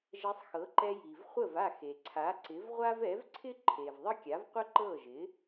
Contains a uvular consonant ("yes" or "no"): yes